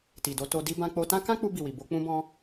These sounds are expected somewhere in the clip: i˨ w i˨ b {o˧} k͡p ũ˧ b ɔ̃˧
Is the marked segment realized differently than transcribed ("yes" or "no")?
no